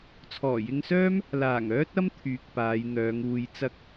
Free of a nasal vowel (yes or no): yes